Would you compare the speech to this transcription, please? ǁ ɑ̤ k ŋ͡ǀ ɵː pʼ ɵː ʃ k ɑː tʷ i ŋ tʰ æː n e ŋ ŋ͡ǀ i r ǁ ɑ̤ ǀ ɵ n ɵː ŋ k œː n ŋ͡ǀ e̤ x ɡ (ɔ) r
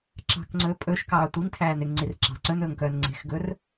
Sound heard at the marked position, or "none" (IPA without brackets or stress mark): ɵ